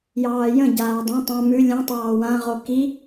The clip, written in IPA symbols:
j ɑː j ə̃ ɟ aː dˤ ã tˤ ã m ʉ lʲ ə̃ tˤ ɑː w ã ʁ o k i

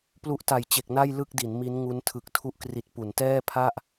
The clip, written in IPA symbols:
p l u˦˥ ʔ t a˨˩ j t͡ɕ e˨˩ k̚ n a˥˩ j l ɯ˥˩ k̚ d i˩˦ n m i˦˥ n ŋ u˦˥ n tʰ ɯ˨˩ k̚ tʰ u˦˥ ʔ k r i˨˩ t̚ p u˩˦ n t ɛː˥˩ pʰ a˥˩ ʔ

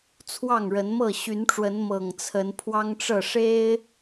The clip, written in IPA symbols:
t͡sʰ w ɑ˥˨ ŋ ɻ ə˨˦ n m ɤ˥˨ ɕ y˨˦ n ʈ͡ʂ w ə˨˦ n m ɤ˨˩ ŋ t͡sʰ ə˨˦ n pʰ w ɑ˦ ŋ ʈ͡ʂ ɤ˥˨ ʂ e˦ ɪ̯

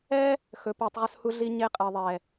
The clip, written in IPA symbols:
ɛ˦ | x ɵ˨ p u˨ tˤ ʁ ɵ˧ s h u˧ ɮ i˧ ɲ e˧ qʼ ɛ˨ ðˤ ɛ˨

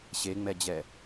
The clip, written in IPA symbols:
ɕ e ŋ͡m ɛ d͡ʑ ɛ

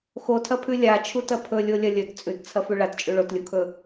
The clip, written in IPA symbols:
x o tʰ ɐ pʰ ʉ lʲ a t͡ʃʰ u t ɐ pʰ ɵ lʲ o lʲ ɐ lʲ ɵ t t͡sʼ ʉ t t͡sʰ ɐ f ʉ ɭ a t t͡ʃʼ ʉ ɭ o t lʲ u kʰ ɵ

